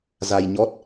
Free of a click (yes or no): yes